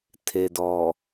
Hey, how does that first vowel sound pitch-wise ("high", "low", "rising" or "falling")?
low